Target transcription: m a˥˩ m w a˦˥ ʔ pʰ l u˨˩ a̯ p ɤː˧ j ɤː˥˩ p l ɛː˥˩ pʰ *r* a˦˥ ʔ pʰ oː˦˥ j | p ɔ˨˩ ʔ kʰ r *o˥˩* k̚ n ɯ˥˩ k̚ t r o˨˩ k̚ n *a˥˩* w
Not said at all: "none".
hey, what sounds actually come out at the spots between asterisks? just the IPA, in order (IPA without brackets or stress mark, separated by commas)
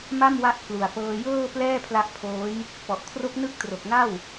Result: l, o˦˥, a˥˩